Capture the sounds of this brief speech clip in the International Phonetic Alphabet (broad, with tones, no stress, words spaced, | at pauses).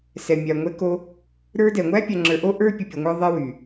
sɛ˨ mʲa˨ŋʷɛ˧ko˧ | ɾə˞˧dɛ˨ŋʷæ˦ pʲa˧ŋ͡ǁə˞˧ ʔo˦ʔə˞˦ pʲo˨pʲo˨ŋʷə˞˧ ðˤæ˦wy˨